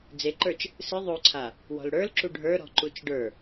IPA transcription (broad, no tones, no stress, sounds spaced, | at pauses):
d͡z e ǃ ə˞ t͡ʃ | s ɨ ðˤ o ǀʰ a | w ɔ̤ l ɽ ə˞ l ǁ u ɖʱ ə˞ ɾ ɔ̤ ǃ u t͡ʃ ɖ ə˞